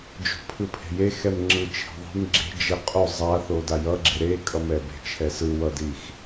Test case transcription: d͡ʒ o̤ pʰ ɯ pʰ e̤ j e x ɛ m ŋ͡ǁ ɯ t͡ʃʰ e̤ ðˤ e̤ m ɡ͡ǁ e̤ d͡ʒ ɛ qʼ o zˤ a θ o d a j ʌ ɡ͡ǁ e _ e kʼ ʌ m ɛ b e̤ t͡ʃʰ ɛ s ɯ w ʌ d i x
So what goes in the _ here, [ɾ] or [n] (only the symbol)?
ɾ